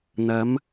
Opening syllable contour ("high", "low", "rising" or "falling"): rising